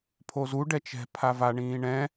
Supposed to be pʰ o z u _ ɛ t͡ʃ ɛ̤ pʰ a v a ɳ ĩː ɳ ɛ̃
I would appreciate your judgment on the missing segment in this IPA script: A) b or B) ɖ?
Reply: B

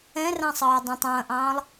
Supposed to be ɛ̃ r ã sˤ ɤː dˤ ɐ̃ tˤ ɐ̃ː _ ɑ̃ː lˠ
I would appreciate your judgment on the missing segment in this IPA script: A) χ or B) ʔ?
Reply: B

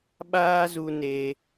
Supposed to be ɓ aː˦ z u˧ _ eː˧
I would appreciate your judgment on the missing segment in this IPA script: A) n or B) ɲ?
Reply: A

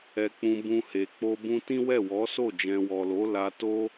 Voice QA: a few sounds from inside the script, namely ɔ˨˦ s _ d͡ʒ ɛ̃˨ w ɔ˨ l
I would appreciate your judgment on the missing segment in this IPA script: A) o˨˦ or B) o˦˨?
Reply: B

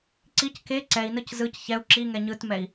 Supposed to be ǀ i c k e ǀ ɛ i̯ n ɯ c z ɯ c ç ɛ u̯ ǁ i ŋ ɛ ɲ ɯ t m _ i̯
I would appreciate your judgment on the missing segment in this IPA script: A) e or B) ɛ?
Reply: B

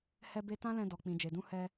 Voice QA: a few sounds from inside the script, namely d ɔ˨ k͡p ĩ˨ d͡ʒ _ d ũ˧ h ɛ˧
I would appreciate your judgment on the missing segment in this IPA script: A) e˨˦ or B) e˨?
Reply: B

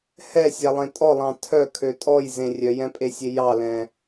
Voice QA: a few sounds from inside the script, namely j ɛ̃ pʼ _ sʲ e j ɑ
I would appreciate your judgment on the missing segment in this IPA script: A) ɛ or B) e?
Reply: B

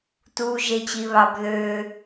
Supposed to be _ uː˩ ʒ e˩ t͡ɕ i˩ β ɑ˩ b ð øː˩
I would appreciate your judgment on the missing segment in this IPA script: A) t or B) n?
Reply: A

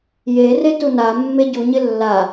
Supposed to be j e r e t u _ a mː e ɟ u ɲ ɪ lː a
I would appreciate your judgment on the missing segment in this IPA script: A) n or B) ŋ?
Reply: A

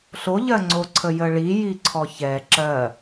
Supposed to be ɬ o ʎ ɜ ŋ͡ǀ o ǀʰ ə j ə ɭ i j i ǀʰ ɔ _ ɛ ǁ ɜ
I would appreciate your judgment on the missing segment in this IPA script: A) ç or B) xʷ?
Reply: A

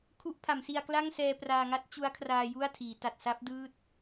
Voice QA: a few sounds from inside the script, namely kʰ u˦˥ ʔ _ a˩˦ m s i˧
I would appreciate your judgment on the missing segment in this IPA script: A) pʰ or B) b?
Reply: A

